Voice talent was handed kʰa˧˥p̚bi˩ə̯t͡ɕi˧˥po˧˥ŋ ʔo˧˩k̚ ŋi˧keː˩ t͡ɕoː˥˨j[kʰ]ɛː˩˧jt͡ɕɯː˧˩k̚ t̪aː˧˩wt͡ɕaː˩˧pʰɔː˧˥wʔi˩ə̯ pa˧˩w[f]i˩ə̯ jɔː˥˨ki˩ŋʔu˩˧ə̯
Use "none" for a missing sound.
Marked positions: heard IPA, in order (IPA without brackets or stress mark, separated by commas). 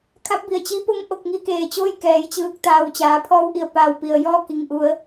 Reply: k, p